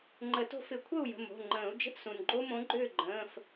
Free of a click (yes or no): no